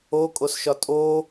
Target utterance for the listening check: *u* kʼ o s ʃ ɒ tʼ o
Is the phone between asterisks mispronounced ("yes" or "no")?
yes